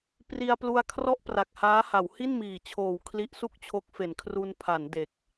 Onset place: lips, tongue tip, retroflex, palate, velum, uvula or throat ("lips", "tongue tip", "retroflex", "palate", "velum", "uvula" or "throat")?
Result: lips